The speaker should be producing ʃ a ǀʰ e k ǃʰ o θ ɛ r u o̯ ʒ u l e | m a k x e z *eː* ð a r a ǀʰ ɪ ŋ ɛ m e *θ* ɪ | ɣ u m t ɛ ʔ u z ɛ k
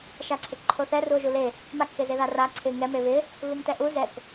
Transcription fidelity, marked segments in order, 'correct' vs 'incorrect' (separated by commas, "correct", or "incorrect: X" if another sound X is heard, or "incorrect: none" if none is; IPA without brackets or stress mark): incorrect: e, incorrect: β